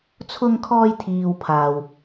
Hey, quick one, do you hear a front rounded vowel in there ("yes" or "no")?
no